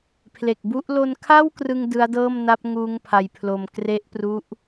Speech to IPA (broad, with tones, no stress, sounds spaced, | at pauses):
pʰ l e˨˩ k̚ b u˦˥ ʔ l o˧ n kʰ a˥˩ w k r ɯ˧ ŋ d ɯ˦˥ a̯ d ɤː˥˩ m n a˦˥ p̚ ŋ uː˦˥ ŋ pʰ a˧ j pʰ l o˧ m k r e˦˥ ʔ p r u˦˥ ʔ